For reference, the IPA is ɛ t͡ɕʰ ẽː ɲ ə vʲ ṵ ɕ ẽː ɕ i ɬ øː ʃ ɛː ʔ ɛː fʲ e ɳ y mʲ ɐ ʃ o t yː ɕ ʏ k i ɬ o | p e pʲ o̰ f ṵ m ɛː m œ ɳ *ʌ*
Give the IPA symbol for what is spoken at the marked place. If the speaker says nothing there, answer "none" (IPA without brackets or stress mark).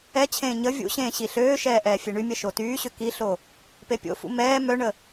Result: ə